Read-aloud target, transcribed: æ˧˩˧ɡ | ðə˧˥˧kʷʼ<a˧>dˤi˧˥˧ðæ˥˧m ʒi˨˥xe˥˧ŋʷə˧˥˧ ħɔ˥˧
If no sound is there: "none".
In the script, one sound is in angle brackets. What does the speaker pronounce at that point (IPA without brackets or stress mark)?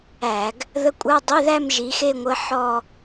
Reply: a˧˥˧